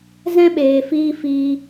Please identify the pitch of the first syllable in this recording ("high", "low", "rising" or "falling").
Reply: high